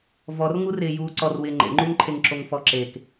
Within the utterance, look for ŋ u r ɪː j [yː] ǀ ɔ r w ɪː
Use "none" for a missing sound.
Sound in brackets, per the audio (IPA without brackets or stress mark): uː